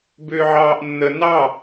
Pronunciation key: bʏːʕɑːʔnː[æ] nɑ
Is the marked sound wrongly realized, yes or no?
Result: yes